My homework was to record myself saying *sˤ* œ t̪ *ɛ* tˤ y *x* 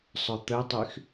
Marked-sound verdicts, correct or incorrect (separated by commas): correct, incorrect, correct